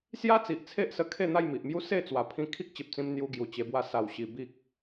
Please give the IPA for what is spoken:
sja˦ t͡si˨ʔt͡sʰe˦ʔsə˧ kʰe˥˧n̪a˥˧jmi˨ʔmju˦ se˥˧t͡swa˨˩ pʰĩ˧kʰi˦k̚t͡ɕe˨p̚t͡sĩ˧m n̪ju˧ɡju˨˩t͡ɕe˧bwa˧ sa˨˩wɕi˨˩ bi˦k̚

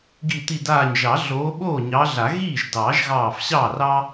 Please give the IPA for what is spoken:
ɡi˧˩ t̪i˧˩ daː˧˩ɲʒɑ˨˩˦ ɮoː˨˦ɓoː˥˩ɲɑː˨˦ɮa˨˩˦ ɣiː˥˩ʒdɑː˨˩˦ʒ ɣɑː˧˩fɕɑː˥˩rɑː˥

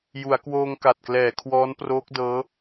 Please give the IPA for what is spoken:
ju˩˦a̯kwoː˧ŋka˨˩t̚klɛː˩˦ kʰwɔː˦˥nproː˦˥k̚dɤː˦˥

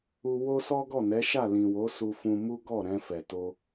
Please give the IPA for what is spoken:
u˧ wo˦sɔ˦ɡɔ˦˨ nɛ˨˦ʃa˦˨lĩ˨ wo˨˦su˧fũ˧ mu˦ɡɔ˦˨ ɾɛ̃˧ fɛ˨to˧

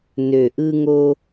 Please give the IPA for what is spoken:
nø˨ʔɯ˧ŋo˧

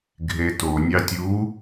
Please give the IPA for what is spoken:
ɡʱeto nʲɑtʲu

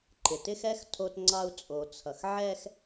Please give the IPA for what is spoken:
ǃɪ˨tɪ˦xɛ˦x tʰo˦tŋ͡ǀɑ˦u̯ t͡sʼo˨t͡sʰʌ˨xʕɛ˦x

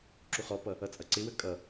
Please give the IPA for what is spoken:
ǁuχɔpʌ | ʌt͡sʼʌǀɪwə kʼʌ

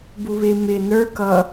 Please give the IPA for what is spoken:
buβɪ mɪ nə˞ kʌ

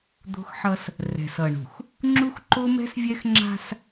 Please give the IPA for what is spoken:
d̪o̤˦xħʌ˦s | rɛ̤˨sʌ˨ɳṳ˨x | ŋ͡ǁu˦xǃo˦mɛ̤˦svʲɛ˦x ŋ͡ǁa̤˦s

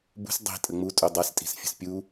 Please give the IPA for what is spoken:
bṳs dˤi̤ tʼəŋ͡mu tʼudˤastʼi̤sfʲə̤s pʲu

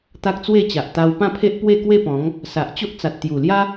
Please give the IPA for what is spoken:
t̪a˦k̚t͡swe˥˧t͡ɕa˨ʔ t̪a˧wpã˥˧pʰe˦ʔ pwe˥˧kwe˥˧pɔ̃˨˦ŋ | sa˨ʔt͡ɕo˦ʔ t͡sa˨t̚t̪ju˨˩lja˦

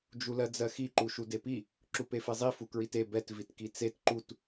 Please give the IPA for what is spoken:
d͡ʒulɜd͡zɜxi ǃuʃudepi | ǁupefezˤi fukɹite bɛt vitkit͡set ǃut

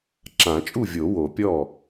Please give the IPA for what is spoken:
ǁã˨˩˦t͡ʃʼu˥˩vʲo˨˩˦ wo˨˩˦pʲɔ˥˩

